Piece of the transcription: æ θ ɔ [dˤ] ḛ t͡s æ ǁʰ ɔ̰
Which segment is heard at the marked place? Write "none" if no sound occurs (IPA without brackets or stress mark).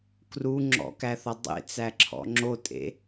dˤ